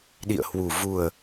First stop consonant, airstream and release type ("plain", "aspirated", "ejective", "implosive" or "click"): implosive